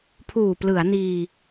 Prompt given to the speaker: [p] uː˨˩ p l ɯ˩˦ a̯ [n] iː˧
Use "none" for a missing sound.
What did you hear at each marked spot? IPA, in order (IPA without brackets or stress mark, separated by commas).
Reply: pʰ, n